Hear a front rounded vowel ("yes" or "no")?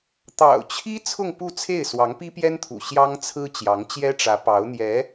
no